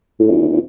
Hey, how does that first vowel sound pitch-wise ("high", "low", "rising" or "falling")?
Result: low